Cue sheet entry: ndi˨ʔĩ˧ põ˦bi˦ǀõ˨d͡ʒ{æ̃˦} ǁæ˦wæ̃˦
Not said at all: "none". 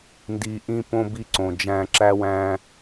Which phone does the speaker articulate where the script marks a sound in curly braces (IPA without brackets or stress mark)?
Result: æ̃˧